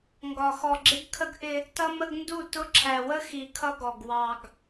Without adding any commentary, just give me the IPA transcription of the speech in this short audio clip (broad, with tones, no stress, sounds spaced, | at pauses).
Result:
ŋ ɡ ɒ˨ x ɔ˨ ɡ͡ǁ ɪ˦ ɡ kʰ ə˦ ɡ ʔ ɪ˦ | t ʌ˦ m ə˦ ɡ n d u˦˨ t ʊ˦ ǁʰ æ˨ w ə˦ x i˨ kʰ ʌ˦ ɡ ɔ˨ ɡ w ɑ˨ ɡ